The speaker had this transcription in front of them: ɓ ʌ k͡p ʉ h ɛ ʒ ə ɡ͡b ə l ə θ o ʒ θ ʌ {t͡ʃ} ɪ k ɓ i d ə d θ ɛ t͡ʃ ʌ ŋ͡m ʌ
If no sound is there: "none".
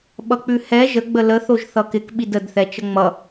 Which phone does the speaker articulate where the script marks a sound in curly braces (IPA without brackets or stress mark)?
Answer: k